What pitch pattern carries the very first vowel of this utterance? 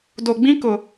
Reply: low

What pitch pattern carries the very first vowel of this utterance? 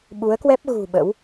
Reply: rising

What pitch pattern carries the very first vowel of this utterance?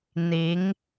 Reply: rising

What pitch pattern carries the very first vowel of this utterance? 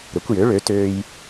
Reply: rising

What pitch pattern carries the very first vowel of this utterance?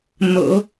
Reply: low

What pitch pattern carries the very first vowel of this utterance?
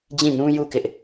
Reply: falling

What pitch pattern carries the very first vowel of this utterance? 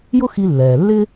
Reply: high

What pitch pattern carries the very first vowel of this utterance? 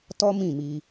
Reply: high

